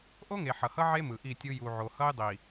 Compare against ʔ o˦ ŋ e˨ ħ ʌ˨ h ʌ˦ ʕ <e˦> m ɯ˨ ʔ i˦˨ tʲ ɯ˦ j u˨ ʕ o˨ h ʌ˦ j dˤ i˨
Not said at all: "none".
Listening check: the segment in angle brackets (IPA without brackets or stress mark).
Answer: e˦